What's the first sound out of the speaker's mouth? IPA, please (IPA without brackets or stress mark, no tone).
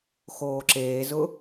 x